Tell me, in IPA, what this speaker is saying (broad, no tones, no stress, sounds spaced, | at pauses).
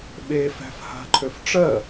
ɓ e f æ̤ f h a̤ ǃʰ ø f ʈ͡ʂ ɜ